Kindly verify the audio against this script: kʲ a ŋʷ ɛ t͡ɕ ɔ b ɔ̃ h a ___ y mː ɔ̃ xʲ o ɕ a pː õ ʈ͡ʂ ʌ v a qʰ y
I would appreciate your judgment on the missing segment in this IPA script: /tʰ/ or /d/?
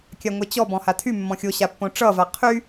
tʰ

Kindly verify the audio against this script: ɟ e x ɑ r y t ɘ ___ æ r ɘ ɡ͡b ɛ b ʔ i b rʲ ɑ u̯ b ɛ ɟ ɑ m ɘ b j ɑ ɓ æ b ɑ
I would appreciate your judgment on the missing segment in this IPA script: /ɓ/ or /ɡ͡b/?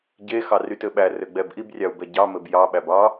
ɓ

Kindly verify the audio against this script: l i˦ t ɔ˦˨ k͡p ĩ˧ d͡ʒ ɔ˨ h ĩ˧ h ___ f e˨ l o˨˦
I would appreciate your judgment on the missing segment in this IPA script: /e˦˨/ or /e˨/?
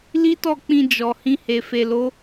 e˨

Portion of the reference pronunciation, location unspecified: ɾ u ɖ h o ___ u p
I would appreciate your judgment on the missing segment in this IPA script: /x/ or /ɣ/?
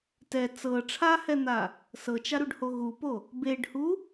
ɣ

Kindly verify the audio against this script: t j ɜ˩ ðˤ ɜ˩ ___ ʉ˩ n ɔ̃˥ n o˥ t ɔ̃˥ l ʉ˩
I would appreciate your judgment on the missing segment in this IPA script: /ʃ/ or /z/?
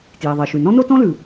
ʃ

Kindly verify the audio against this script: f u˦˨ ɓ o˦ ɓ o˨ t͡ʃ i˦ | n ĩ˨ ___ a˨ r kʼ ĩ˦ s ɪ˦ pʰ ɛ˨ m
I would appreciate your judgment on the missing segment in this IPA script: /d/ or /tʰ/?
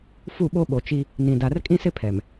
d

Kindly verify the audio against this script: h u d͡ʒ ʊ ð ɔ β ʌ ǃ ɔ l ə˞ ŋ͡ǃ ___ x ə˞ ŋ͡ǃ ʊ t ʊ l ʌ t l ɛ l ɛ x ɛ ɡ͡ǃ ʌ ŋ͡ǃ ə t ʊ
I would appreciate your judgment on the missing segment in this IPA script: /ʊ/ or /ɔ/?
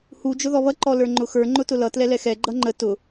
ʊ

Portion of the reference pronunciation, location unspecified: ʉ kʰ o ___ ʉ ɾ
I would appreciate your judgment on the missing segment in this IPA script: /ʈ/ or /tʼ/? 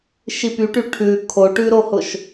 ʈ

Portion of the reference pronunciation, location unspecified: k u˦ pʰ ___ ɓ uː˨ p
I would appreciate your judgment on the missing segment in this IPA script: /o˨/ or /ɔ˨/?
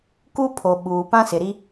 o˨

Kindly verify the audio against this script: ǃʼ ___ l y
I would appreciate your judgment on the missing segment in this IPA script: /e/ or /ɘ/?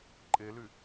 e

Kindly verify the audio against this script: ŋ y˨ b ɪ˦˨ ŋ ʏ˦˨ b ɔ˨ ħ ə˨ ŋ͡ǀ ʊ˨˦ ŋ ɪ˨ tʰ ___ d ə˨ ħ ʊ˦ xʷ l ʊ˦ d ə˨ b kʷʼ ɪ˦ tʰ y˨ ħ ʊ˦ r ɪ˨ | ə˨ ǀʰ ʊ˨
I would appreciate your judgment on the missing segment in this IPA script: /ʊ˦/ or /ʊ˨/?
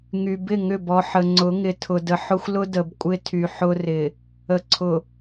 ʊ˨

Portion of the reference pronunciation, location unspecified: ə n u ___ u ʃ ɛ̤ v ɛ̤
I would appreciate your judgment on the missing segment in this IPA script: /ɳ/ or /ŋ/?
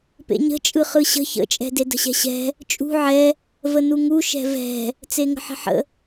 ŋ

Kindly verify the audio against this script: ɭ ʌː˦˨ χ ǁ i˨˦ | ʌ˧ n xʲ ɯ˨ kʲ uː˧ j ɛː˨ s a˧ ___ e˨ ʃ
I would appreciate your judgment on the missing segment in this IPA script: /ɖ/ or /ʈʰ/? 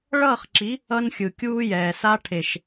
ʈʰ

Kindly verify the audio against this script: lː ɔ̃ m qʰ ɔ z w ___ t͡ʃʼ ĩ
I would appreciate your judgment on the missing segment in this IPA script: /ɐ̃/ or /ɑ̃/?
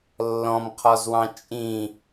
ɑ̃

